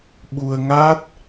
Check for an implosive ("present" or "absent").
present